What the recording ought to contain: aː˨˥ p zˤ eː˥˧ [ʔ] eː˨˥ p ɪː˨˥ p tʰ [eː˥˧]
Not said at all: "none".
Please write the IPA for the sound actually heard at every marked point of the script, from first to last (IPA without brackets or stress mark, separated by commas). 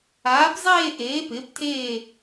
ʔ, eː˥˧